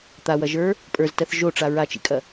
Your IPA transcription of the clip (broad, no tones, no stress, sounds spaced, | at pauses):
t̪ a w ɐ ʒ ə˞ | pʼ ə˞ z t ɜ θ ʒ o ʈ͡ʂ a ɹ a t͡ʃ ḭ kʼ ɐ